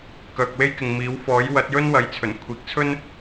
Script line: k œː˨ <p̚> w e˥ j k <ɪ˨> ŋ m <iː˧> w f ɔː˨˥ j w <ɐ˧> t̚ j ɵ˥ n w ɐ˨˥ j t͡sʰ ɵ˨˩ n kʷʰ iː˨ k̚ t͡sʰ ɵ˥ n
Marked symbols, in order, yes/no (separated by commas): no, yes, no, no